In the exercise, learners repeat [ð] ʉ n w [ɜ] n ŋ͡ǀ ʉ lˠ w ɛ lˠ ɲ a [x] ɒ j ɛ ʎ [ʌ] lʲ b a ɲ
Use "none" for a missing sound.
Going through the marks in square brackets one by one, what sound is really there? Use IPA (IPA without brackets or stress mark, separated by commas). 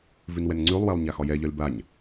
v, ɛ, x, ɒ